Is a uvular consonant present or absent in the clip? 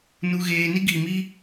absent